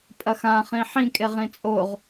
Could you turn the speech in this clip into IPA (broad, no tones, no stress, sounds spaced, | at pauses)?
pʼ ɐ x ã χ ĩ ħ ĩ kʼ e ʁ ĩ t͡sʼ o ʁ